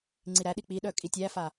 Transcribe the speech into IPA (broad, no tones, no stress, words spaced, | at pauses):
ŋ͡ǀiɾæɗi k͡piɗœ kʼitʲæfa